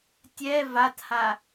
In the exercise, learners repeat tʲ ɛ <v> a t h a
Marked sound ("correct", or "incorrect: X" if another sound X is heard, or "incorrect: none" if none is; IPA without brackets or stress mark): correct